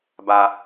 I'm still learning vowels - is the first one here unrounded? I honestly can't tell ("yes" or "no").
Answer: yes